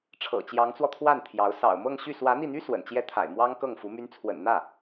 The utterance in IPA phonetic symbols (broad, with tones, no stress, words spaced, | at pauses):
ʈ͡ʂʰɤ̰˨˩t͡ɕjɑ˧˥ŋt͡swɔ˧t̪ʰwa˥˩n t̪ʰjɑ˧˥ʊ̯ sɑ̰˨˩ʊ̯mɤ˥˧ŋɕy˥˩ swä˧˥n̪i˥˩n̪y˥ swə̰˨˩nt͡ɕjɛ˥t̪ʰa̰˨˩ɪ̯ mwɑ˥ŋ kɤ˥˩ŋfu˧˥ my˧˥nt͡sʰwə̰˨˩nn̪ä˥˩